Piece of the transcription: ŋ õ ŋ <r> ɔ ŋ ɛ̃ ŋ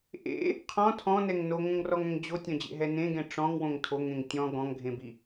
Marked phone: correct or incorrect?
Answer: correct